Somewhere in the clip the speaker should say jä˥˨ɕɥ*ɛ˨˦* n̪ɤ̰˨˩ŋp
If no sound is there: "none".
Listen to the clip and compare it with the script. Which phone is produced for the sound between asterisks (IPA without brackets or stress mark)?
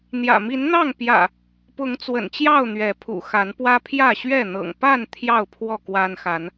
ɛ˥˨